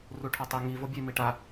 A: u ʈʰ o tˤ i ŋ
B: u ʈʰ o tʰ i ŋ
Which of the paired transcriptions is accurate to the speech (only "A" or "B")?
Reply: A